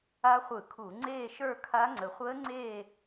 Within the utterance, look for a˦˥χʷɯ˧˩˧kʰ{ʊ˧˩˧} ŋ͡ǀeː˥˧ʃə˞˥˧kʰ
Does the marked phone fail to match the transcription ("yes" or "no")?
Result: yes